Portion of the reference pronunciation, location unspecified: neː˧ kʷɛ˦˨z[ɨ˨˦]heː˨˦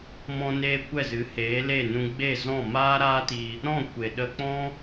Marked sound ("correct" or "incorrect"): correct